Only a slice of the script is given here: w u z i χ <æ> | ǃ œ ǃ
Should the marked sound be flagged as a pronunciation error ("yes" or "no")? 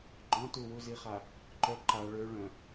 yes